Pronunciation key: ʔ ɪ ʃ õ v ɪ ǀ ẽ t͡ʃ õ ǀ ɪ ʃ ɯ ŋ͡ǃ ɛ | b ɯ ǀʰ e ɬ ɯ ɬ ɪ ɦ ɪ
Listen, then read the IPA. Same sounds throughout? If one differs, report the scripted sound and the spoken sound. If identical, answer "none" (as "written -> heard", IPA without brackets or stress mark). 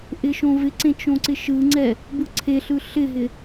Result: ŋ͡ǃ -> ŋ͡ǀ